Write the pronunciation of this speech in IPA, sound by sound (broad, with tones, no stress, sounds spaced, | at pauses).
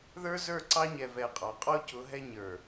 ð ə˞˦ z ə˞˦˨ ǀ ɑ˦ ɲ ɛ˨ v ɛ˨ qʼ ɑ˨ qʼ ɔ˦ c ʊ˨˦ ɦ ɛ˦ ɲ ə˞˨